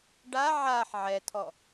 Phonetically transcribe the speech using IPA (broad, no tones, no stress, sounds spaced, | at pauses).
ɖ a ʕ a ħ ʕ ɛ tʰ ɔ